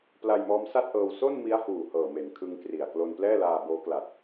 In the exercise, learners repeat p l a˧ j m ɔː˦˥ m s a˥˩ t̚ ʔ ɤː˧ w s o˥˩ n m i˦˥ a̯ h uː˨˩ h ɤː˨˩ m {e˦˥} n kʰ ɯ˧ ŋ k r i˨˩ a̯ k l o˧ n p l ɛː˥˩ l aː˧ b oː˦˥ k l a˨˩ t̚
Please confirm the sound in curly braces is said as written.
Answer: no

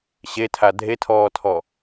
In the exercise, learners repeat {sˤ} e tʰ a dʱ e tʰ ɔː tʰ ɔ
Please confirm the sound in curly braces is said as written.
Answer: no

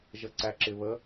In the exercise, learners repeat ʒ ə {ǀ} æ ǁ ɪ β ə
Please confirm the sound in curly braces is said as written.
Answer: yes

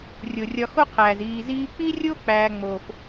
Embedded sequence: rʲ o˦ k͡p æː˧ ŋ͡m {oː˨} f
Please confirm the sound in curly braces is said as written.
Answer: yes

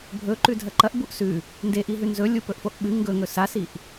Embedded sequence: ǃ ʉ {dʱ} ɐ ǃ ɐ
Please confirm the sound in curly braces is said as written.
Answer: yes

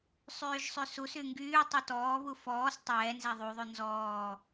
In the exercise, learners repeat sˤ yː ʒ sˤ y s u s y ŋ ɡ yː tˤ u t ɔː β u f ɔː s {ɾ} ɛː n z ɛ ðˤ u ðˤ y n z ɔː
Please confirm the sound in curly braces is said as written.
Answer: no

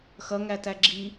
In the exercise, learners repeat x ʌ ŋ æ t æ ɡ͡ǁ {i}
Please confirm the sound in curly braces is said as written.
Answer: yes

